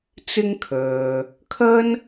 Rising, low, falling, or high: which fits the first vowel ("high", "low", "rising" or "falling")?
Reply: high